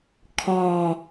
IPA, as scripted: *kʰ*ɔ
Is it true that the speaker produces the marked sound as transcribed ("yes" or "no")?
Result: yes